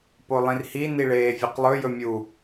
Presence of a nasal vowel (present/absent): present